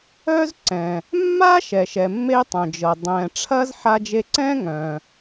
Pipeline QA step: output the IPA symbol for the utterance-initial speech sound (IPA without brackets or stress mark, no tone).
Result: œ